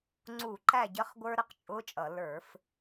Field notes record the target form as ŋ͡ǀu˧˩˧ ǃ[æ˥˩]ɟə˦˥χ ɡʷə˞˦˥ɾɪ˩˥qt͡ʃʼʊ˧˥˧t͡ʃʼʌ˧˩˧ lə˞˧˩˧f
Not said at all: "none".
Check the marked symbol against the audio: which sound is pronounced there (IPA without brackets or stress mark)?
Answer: æ˥˩